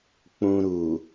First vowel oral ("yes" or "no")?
no